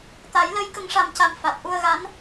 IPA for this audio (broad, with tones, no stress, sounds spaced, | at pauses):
t̪ a˨˩˦ j l ə˧˥ j k ə˨˩˦ ŋ ʂ a˨˩ m c a˨˩ m f a˨˩ t̚ ʔ u˧ ə̯ ɣ a˧˥ n